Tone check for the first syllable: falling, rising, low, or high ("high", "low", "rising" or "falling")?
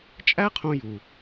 high